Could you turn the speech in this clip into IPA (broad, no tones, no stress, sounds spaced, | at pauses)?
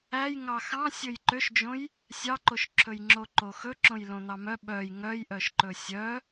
æ j ŋ ɑ x ɑ̃ sʲ ɵ j ǃ ø ʃ d͡ʒ õ j | sʲ ɑ ǃ o ʃ ǁʰ ɵ j ŋ͡ǁ o ǃ o x ɵ ǁ õ j l õ n̪ ɑ m œ ɓ œ j ŋ œ j ʔ œ ʃ ǃ ɵ sʲ œ